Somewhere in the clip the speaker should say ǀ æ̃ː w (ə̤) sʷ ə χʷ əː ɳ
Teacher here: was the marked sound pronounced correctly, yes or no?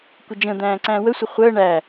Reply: no